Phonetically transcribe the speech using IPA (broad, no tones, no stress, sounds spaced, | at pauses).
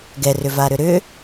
ɡ ɛ r ʏ v a ɾ ʏ ɾ ʏ